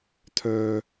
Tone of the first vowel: low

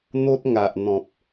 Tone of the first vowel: high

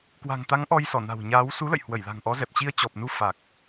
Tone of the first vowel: low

